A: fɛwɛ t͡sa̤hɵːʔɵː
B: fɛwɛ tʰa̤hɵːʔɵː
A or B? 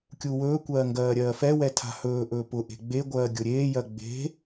B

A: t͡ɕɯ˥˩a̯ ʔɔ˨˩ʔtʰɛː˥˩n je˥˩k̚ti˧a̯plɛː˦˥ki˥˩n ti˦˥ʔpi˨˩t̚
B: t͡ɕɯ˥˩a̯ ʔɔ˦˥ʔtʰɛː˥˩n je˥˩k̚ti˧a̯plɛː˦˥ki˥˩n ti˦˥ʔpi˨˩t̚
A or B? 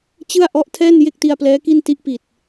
B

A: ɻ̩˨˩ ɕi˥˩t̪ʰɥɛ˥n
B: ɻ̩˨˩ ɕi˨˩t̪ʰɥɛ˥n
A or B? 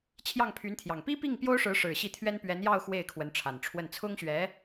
A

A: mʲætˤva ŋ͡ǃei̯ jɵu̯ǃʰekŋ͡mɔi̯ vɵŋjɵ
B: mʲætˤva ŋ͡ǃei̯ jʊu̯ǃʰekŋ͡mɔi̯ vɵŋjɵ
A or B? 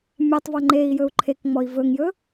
A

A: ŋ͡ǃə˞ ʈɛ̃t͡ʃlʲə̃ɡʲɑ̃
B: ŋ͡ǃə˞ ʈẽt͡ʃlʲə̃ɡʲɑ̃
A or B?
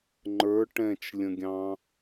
A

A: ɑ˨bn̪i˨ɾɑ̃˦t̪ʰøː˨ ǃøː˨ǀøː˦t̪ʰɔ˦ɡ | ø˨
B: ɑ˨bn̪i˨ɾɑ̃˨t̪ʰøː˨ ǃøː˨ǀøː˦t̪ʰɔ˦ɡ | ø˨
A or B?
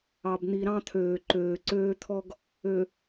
A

